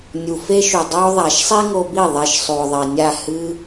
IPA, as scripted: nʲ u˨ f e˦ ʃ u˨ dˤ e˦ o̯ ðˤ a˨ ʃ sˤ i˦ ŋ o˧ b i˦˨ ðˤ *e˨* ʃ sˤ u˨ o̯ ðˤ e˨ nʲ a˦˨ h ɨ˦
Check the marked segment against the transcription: incorrect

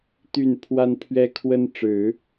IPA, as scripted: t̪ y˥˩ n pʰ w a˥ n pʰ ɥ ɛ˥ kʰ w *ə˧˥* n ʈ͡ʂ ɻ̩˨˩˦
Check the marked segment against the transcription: incorrect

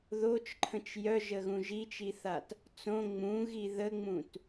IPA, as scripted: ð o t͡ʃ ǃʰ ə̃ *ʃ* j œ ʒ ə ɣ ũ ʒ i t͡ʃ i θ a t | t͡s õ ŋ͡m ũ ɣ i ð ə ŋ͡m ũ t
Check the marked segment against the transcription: incorrect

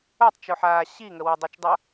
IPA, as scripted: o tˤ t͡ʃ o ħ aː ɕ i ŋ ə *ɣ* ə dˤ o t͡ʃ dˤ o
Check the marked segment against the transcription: incorrect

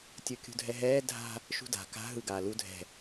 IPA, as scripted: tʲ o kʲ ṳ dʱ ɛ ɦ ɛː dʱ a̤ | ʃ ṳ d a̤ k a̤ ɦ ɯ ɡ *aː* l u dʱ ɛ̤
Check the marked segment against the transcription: correct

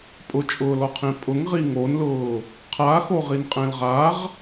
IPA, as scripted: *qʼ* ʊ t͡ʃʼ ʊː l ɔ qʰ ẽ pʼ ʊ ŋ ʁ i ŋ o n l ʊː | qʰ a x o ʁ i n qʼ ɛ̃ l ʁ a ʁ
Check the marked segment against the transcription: incorrect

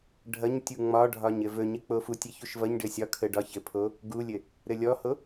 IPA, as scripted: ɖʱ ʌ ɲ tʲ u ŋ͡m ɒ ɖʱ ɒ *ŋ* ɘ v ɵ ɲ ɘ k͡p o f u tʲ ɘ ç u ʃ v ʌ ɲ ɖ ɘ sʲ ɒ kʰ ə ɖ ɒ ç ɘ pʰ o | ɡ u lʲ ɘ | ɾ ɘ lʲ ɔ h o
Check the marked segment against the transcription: incorrect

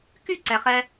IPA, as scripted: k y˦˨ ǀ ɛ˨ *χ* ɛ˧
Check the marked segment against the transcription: correct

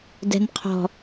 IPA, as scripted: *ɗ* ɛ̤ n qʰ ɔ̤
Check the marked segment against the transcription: incorrect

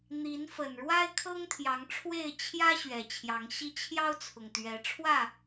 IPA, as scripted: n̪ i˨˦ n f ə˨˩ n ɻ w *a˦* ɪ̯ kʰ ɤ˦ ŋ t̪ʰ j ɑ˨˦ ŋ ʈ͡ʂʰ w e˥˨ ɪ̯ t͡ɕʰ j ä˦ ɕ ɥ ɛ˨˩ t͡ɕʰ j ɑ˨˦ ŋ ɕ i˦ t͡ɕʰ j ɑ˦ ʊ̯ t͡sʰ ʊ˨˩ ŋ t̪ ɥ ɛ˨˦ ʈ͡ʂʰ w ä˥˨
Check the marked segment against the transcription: correct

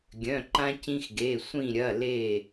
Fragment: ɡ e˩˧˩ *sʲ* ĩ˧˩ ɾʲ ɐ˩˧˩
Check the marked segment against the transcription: incorrect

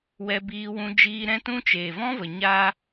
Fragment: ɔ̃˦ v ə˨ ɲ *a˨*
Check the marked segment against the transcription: incorrect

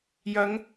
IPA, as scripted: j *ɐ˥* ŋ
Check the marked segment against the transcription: incorrect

